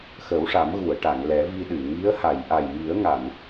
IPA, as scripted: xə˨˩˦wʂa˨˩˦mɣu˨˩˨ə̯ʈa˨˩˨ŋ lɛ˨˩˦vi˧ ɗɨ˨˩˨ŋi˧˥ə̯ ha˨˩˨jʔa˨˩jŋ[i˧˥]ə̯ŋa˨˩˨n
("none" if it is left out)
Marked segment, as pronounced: i˨˩˦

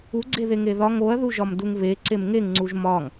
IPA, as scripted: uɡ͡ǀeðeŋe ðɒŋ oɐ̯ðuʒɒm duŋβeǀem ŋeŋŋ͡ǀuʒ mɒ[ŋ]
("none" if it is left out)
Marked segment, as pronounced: ŋ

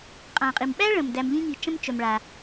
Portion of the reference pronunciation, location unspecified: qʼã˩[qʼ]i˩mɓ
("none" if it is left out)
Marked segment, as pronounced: qʼ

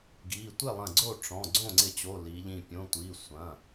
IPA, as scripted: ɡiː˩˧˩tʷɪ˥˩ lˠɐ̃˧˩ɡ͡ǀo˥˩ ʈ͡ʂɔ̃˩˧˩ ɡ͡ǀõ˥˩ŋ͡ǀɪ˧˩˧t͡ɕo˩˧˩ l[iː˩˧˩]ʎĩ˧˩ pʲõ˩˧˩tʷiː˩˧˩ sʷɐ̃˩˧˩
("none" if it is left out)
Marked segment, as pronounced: iː˩˧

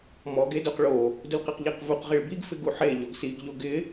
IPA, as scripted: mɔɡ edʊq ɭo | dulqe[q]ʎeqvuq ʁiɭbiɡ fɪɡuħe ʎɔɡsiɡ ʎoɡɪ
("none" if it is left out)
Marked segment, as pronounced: q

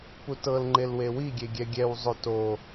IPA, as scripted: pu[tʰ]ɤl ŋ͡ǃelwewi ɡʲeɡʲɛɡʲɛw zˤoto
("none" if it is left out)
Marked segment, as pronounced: t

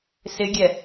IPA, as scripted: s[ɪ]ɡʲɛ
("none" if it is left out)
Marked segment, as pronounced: ɪ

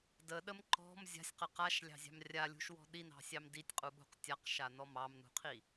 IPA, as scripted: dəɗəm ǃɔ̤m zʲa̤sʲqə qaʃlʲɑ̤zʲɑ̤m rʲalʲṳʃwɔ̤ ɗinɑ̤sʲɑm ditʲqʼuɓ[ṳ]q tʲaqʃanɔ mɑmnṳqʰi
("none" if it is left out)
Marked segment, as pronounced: ṳ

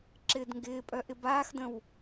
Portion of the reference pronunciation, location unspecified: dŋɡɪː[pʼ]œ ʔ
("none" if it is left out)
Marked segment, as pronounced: pʼ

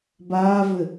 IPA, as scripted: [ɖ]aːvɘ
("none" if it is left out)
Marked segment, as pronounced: b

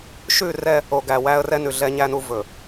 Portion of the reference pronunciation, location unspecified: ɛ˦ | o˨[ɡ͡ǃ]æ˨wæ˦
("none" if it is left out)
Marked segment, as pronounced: ɡ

